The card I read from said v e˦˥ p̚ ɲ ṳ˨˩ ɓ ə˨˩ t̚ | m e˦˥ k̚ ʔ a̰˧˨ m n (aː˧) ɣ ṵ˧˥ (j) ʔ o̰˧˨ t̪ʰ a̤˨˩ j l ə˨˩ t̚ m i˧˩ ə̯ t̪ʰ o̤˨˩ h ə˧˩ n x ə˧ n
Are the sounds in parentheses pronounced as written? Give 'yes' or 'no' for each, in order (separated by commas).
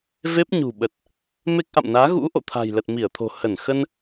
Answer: no, no